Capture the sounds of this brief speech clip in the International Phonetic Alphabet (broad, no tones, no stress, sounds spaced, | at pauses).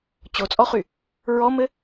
t͡ɕ o t͡sʼ ɔ χ y | ɹ ɔ m ɘ